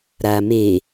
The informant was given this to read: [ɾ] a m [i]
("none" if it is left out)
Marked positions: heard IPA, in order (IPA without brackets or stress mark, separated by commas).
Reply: ɾ, e